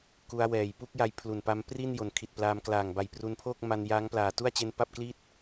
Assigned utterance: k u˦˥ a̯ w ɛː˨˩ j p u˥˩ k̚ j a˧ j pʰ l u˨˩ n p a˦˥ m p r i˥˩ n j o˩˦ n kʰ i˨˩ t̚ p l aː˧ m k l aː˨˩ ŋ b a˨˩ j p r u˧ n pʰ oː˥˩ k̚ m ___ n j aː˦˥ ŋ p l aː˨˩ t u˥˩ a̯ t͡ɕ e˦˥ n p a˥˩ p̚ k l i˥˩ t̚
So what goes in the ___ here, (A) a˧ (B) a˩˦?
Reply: A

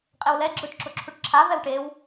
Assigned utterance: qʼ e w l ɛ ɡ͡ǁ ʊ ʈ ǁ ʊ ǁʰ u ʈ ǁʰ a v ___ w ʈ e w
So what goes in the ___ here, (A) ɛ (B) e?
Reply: A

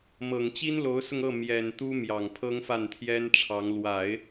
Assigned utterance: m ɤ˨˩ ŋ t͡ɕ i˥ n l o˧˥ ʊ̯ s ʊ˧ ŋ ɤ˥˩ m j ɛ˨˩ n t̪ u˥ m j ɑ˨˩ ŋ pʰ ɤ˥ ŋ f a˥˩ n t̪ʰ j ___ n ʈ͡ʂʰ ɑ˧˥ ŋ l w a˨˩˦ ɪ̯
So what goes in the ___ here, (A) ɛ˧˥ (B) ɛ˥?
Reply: B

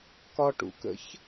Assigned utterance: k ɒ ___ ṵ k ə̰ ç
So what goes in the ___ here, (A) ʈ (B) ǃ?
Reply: A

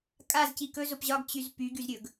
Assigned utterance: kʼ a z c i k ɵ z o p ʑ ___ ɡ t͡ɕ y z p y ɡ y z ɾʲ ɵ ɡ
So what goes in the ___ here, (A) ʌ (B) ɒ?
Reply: B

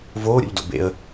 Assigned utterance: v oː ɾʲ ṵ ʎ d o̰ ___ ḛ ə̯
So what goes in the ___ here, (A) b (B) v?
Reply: A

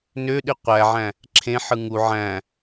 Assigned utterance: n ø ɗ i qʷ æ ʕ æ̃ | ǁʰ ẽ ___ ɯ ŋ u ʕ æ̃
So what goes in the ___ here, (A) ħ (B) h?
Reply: A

